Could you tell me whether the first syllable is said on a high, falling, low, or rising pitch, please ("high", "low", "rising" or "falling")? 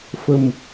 low